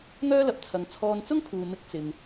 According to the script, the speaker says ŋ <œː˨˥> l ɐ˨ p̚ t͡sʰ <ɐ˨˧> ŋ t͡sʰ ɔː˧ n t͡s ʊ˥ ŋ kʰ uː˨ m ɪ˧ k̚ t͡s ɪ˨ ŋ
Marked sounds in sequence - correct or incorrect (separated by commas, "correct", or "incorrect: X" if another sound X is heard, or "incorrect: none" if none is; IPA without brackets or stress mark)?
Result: incorrect: œː˥, correct